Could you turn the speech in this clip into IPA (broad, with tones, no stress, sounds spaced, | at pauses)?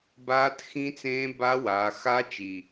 b aː˦˥ t x ĩ˦˥ t͡s ẽː˦˥ b a˦˥ w aː˨˦ x a˦˥ t͡ʃ i˨˩